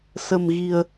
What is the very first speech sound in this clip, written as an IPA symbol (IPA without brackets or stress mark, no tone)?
s